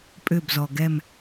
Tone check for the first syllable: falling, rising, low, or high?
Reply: falling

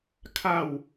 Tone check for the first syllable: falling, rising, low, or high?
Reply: falling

